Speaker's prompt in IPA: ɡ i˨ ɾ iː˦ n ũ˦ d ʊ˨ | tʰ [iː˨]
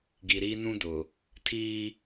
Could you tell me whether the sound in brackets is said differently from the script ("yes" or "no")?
yes